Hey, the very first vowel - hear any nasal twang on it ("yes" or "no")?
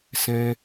yes